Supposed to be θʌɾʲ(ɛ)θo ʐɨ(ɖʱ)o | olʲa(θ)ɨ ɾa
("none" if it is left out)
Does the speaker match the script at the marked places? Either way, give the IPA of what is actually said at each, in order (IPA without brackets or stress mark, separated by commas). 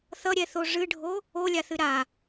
ɛ, ɖʱ, θ